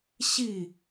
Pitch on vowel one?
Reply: falling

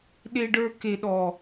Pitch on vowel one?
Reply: high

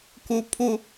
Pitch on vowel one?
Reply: low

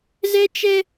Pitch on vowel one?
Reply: high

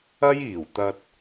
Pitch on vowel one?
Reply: high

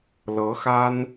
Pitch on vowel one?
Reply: rising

